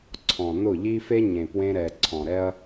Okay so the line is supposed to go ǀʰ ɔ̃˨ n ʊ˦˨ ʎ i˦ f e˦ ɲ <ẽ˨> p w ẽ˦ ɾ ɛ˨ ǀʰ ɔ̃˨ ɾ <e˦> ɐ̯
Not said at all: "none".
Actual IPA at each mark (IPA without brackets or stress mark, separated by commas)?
ẽ˨, ɛ˦